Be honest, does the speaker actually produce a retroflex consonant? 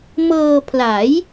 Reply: no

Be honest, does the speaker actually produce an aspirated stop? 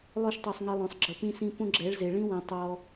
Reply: no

